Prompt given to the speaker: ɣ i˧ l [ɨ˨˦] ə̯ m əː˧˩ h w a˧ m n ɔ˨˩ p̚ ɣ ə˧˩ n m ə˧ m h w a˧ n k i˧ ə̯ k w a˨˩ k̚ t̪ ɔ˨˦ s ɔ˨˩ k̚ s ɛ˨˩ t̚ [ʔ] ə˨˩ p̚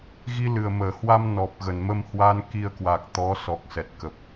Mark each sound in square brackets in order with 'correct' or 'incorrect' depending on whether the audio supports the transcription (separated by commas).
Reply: incorrect, incorrect